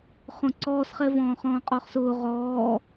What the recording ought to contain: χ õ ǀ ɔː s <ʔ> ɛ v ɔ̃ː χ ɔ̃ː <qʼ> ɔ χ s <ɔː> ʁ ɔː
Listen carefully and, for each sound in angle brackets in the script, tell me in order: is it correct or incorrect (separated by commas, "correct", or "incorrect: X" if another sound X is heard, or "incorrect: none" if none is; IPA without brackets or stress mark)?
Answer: incorrect: χ, correct, incorrect: ʊː